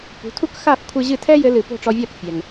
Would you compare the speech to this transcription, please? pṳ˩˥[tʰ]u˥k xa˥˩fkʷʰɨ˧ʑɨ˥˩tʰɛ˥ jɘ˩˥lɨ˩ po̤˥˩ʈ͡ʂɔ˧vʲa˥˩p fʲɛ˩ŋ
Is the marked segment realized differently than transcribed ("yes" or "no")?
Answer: no